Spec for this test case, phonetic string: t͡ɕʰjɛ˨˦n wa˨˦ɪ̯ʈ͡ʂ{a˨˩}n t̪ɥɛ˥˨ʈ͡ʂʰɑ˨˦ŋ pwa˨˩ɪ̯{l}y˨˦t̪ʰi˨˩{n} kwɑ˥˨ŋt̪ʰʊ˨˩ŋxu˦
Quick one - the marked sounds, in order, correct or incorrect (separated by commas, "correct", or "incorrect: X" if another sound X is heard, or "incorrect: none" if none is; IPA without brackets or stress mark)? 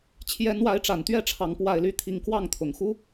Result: correct, correct, incorrect: ŋ